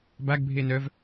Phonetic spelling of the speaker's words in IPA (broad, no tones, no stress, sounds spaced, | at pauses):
b a ɡ bʱ e n œ v